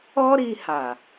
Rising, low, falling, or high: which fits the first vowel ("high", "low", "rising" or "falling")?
high